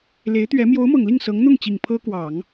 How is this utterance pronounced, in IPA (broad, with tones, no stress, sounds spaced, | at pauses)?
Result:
l e˧˥ ɪ̯ t̪ ɥ ɛ˧˥ m j o˧˥ ʊ̯ m ɤ˨˩ ŋ l i˥˩ ŋ s ɤ˧˥ ŋ n̪ ʊ˥˩ ŋ t͡ɕ i˨˩ ŋ pʰ ɤ˥ k w ɑ˨˩˦ ŋ